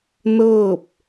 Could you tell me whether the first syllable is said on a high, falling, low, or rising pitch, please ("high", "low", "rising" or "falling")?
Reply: falling